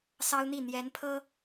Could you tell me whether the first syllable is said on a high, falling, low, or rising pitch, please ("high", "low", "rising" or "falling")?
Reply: high